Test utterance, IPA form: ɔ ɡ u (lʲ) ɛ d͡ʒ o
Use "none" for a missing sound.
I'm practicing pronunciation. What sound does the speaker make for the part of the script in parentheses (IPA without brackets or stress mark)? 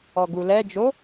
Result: l